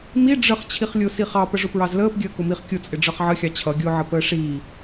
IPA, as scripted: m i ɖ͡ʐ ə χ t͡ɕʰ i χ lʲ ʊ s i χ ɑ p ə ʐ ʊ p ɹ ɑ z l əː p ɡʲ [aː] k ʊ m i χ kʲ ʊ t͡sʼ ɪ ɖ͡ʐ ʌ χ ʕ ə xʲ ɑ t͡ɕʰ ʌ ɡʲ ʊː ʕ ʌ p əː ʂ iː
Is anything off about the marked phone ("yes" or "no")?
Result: yes